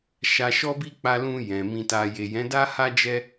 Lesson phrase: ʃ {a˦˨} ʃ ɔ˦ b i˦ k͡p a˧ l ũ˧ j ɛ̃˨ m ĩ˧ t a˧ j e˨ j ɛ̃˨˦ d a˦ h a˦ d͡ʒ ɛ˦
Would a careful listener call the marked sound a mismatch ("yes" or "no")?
yes